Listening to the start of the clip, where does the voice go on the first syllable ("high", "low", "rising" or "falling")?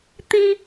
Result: high